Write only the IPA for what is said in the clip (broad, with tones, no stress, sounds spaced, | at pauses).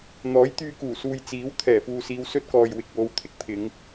n̪ ɔː˨˥ j t̪ yː˧ k uː˨˩ s uː˨ j t͡s iː˨˥ w t̪ʰ ɛː˨˩ f uː˨ s iː˨˧ w s ɵ˥ t̚ k ɔː˨ j w ɪ˨ k̚ w o˨˧ w t̪ʰ ɪ˥ k̚ pʰ ɪ˨˧ ŋ